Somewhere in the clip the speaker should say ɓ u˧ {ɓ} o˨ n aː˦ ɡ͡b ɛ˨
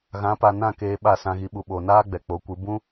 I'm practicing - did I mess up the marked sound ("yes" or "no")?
no